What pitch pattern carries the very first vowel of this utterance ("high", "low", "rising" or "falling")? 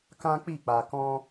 high